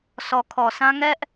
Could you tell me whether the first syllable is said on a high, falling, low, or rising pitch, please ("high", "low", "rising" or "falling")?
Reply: low